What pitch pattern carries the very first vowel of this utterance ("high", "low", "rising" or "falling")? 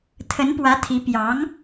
rising